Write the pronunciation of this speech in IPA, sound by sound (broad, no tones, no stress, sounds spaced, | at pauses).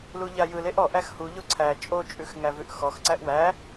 l u ʎ a j ɯ l e ʔ ɔ ʔ æ x h u ʎ o ǀʰ æ t͡ʃʼ o t͡ʃʼ ʉ x ŋ æ v ʉ ʔ x ɔ x ǀ æ ʔ w æ